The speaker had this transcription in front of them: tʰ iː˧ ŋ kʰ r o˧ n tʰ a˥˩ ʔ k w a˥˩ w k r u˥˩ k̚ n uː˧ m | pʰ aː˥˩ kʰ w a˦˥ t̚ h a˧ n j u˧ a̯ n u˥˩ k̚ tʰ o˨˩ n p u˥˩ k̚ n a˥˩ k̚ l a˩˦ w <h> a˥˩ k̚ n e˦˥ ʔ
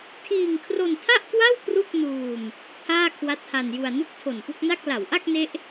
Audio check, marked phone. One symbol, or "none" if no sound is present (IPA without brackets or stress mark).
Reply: ʔ